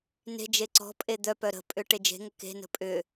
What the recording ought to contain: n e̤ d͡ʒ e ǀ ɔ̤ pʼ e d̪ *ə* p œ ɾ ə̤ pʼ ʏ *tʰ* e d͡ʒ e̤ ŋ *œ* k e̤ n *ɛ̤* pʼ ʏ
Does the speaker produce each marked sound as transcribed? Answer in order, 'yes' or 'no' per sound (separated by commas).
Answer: no, no, no, no